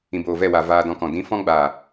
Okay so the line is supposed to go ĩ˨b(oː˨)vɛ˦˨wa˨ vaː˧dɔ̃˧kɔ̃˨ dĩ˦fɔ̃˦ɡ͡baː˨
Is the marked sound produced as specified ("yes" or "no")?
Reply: yes